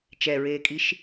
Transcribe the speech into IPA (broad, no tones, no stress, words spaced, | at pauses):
t͡ʃɛɹeːkʼiʃ